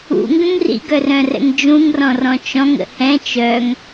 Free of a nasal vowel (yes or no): no